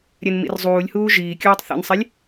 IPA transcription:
ɾʲ ɛ n m ḭ r zˤ uː lʲ h uː ʒ iː kʲ uː tˤ θ ḭ n sˤ i lʲ

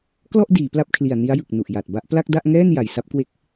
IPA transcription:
k l ɔ˥˩ ʔ d iː˩˦ p l a˦˥ p̚ kʰ l i˨˩ a̯ n i˦˥ a̯ j ɯ˨˩ k̚ n u˨˩ ʔ j a˨˩ t̚ b a˦˥ ʔ p l a˥˩ k̚ d a˥˩ ʔ ŋ ɛː˥˩ n j a˨˩ j s a˦˥ p̚ k w e˦˥ k̚

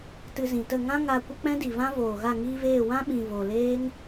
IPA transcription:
t ɨ˧ z ĩ˨ t ə˦˨ ŋ ã˦ ŋ a˧ kʷ ə˦ k͡p ɛ̃˦ d i˨ v ã˦ v oː˨ ɣ a˦˨ ŋ iː˦ v eː˦˨ w ã˦ ɓ ĩ˨ v o˨ l eː˦ ŋ

